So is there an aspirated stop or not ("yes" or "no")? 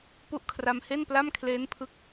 yes